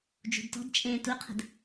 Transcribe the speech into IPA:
d͡ʒ ṳ d t ɔ̤ d t͡ʃʼ ẽː t u qʰ ə̤ d

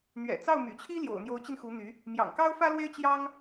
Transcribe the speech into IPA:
n̪ ɥ ɛ̰˨˩ t͡s ɑ˥˩ ʊ̯ m y̰˨˩ t͡ɕʰ i˥ l j o̰˨˩ ʊ̯ n̪ j o˧˥ ʊ̯ t͡ɕ i˧ n x u˧˥ n̪ y˧˥ | m j ɑ̰˨˩ ŋ k ɑ˥ ʊ̯ f ä˥ l w e˥ ɪ̯ t͡ɕ j ɑ˥ ŋ

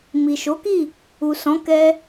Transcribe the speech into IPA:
m i˨ ʃ o˨˦ k i˦˨ | u˨ s ɔ̃˨˦ k ɛ˧

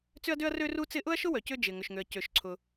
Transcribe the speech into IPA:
t͡s ʏ˥ ɐ̯ d ø˥ ɐ̯ r ø˥ r u˥ t͡s ɪ˥ ʔ ʊ˥ ɐ̯ ʃ ʊ˥ w œ˩ c ʏ˥ d͡ʒ ɪ˩ ŋ ʏ˩ ʃ ŋ ø˩ ɐ̯ c ø˩ ʃ ǀʰ ʊ˩

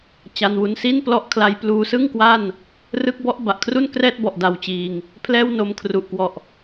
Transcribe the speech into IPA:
t͡ɕ a˧ n w u˧ n s i˥˩ n p l ɔ˦˥ ʔ kʰ l a˧ j p l uː˧ s ɯ˥˩ ŋ k w a˥˩ n | r ɯ˦˥ k̚ b ɔ˦˥ ʔ b a˨˩ ʔ kʰ r u˥˩ n k r ɛː˥˩ t̚ b ɔ˨˩ ʔ d a˧ w t͡ɕ iː˧ ŋ | pʰ l ɛː˥˩ w n o˧ m kʰ r u˨˩ ʔ k w ɔ˨˩ ʔ

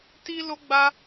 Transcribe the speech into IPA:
t i˧ l o˦ ɡ͡b a˦

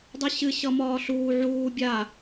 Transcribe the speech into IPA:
dˤ ɨ ɕ ɨ ɕ ʌ m ɒː ɬ uː ʕ uː bʲ a

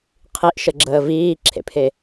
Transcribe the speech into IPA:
qʰ i ʔ ʃ ə ɡ͡ǁ əː v iː ǁʰ ḛ pʰ e

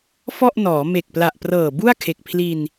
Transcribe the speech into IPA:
f ɔ˥˩ ʔ n ɔː˩˦ m e˨˩ k̚ p l a˨˩ ʔ p r ɤː˨˩ b u˥˩ a̯ kʰ e˨˩ k̚ pʰ l i˧ n

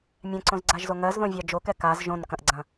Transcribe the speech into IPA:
mʲ ɛ̃ ǀ õ z ɡ͡ǀ a ʒ z o ŋ ɜ z ð õ vʲ ɑ d͡ʒ o k ɛ k a z ʒ õ n k ɐ̃ ʔ ɡ͡ǀ ɐ̃

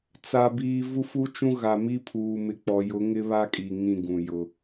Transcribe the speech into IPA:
t͡s a˦ b iː˦ v u˦ f u˦ t͡ʃ ũ˦ ɣ a˨ m i˦ pʰ uː˨ m ɪ˨ k͡p ɔ˨ j ʊ˨˦ ŋ ɪ˦ β a˦ kʼ i˨ ŋ ĩ˦˨ ɡ ũ˨ j ʊ˦

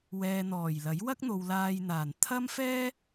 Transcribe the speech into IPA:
w ɛː˨ n̪ ɔː˨˩ j l ɐ˨˥ j w ɐ˥ k̚ n̪ o˨ w l aː˧ j n̪ aː˨˩ n t̪ʰ ɐ˥ m f ɛː˥

